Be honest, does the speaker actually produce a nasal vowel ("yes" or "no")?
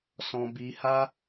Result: yes